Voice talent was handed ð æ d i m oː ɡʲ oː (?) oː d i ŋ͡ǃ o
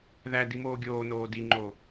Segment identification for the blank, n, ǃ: n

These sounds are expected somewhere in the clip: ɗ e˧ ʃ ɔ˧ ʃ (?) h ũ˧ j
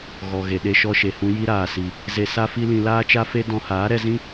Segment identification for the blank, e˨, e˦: e˨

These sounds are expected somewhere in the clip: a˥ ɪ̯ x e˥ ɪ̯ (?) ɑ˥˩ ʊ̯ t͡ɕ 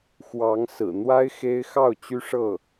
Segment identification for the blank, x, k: x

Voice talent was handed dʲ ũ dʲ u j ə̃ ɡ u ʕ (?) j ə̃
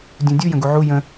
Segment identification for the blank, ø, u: u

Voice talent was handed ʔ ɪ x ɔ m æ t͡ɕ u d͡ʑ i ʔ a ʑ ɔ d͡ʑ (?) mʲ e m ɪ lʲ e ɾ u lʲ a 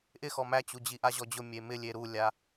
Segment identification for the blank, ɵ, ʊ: ʊ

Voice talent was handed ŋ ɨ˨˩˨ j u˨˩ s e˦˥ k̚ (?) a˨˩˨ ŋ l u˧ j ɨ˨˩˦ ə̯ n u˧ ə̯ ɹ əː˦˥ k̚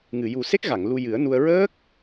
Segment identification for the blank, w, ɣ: ɣ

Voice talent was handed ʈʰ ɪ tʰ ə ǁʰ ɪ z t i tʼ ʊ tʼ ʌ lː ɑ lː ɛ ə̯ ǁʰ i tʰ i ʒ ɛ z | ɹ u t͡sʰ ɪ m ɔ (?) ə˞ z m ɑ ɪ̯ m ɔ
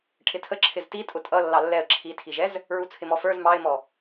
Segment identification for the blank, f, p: f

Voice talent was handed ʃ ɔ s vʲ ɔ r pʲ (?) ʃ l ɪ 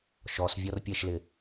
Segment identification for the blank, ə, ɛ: ɛ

